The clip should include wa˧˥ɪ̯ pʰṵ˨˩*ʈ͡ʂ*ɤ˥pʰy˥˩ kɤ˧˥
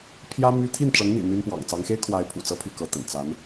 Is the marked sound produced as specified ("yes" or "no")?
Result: no